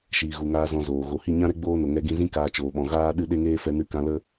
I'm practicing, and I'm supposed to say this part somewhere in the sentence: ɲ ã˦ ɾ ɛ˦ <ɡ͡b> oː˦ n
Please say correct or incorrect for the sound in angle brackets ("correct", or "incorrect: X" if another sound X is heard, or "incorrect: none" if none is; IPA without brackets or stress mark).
correct